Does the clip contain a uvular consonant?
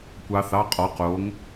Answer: yes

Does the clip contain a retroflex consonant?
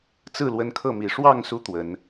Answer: yes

